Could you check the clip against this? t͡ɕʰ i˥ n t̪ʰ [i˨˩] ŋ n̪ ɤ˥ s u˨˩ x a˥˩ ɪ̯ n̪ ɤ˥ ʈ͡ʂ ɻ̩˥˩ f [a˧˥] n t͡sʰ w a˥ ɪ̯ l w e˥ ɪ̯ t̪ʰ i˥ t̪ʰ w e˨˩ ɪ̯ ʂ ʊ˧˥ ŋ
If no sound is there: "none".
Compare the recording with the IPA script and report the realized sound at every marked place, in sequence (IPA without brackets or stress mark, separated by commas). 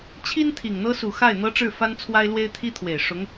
i˨˩, a˥